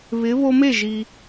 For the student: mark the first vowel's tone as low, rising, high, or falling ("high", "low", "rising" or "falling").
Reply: rising